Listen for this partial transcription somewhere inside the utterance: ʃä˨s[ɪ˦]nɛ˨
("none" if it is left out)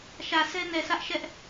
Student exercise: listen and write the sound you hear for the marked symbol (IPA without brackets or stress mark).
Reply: ɛ˦